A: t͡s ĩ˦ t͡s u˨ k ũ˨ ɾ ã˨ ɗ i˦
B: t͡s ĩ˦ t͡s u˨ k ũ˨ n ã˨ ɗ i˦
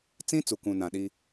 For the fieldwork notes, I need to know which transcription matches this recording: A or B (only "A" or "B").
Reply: B